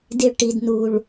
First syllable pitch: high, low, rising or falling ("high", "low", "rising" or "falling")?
high